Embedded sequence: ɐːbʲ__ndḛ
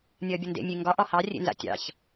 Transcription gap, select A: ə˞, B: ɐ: B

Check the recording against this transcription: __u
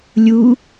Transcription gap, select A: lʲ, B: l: A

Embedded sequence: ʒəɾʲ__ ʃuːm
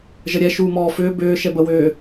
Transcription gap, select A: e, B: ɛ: B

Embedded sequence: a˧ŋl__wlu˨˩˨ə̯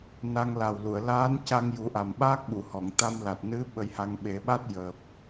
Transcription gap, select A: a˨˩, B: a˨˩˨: A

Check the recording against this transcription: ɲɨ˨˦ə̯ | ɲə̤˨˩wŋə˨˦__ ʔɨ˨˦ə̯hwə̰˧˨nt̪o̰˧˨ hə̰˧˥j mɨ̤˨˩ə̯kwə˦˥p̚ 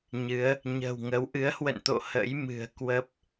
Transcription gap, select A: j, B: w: B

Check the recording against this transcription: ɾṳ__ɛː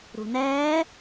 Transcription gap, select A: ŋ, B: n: B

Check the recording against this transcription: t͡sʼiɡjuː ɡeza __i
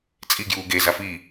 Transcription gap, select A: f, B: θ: A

